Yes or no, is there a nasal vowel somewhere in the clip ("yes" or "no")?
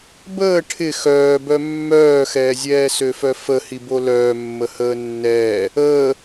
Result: no